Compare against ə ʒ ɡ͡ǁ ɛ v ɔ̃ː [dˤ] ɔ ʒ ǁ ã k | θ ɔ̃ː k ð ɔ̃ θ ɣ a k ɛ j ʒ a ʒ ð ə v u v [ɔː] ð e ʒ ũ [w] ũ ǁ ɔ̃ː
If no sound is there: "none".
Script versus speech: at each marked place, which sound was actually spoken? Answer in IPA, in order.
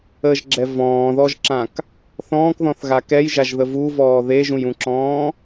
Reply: ð, ɔː, j

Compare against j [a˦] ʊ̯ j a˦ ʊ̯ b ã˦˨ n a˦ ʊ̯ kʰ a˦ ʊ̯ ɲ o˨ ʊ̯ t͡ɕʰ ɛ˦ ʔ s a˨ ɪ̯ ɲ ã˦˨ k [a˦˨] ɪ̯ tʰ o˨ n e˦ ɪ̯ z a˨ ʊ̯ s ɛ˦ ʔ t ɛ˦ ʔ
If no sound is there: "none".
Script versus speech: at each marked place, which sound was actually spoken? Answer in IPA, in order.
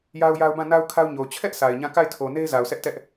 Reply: a˦, a˦˨

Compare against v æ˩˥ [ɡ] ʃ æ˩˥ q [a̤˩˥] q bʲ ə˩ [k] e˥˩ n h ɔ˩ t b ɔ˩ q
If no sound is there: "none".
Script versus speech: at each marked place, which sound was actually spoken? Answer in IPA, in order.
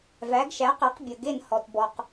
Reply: ɡ, a˩˥, ɡ

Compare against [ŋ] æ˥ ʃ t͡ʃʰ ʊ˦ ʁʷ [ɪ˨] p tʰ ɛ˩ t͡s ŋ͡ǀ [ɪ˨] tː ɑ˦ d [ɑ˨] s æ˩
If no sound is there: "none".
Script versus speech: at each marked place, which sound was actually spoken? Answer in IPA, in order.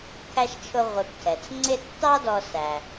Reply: kʰ, ɪ˨, ɪ˦, ɔ˨

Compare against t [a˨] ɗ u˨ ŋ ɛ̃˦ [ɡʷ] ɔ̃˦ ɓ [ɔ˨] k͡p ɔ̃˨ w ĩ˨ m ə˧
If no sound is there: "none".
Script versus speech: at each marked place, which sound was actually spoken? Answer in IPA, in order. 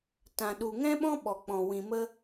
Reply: ã˨, ɓ, ɔ˨

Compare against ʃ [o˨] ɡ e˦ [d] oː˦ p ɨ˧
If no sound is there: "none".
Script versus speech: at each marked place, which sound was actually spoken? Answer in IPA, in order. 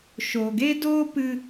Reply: o˨, d

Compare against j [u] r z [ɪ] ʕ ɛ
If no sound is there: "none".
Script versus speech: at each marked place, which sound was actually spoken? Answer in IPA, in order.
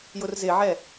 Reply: ʊ, ɪ

